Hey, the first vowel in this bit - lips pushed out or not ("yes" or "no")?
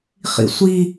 no